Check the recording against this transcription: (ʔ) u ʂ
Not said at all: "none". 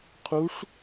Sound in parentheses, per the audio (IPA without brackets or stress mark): qʰ